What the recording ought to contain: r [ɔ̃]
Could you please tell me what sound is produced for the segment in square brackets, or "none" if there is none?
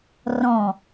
ɔ̃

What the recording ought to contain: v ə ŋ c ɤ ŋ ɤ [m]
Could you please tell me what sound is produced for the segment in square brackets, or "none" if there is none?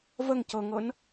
n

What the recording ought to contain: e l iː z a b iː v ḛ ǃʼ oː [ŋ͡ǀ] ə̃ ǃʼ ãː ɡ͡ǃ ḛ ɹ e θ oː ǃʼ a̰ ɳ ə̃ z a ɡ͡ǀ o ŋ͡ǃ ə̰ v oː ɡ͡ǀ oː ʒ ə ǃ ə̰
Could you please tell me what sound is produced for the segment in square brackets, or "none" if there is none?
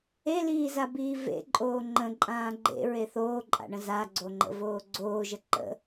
ŋ͡ǃ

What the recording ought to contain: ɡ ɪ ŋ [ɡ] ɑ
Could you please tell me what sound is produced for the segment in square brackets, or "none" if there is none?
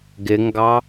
ɡ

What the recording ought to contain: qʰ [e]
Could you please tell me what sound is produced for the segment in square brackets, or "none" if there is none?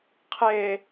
e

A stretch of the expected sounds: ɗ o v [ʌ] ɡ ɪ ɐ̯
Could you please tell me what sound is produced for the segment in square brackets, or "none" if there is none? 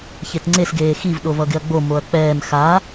ʌ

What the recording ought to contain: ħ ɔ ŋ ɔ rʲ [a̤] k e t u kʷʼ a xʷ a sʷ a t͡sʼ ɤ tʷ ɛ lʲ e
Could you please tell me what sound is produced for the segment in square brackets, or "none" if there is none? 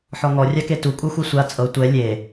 a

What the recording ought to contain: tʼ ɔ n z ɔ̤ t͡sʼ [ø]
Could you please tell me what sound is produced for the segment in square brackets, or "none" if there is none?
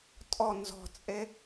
e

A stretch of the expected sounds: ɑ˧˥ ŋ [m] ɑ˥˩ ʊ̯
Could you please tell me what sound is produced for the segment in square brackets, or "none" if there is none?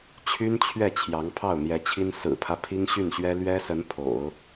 pʰ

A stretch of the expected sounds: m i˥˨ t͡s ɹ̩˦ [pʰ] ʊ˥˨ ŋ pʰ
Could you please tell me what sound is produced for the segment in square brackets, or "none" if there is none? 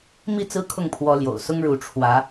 kʰ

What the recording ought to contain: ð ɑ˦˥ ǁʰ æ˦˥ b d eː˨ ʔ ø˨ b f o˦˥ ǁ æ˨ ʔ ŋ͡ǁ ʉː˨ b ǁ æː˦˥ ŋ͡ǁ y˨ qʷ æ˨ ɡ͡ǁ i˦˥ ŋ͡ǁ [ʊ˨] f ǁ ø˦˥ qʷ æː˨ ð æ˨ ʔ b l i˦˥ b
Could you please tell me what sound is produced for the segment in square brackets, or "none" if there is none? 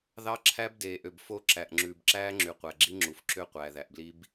u˨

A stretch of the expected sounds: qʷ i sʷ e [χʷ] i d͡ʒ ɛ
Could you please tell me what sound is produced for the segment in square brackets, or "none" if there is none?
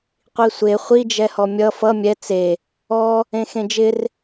χʷ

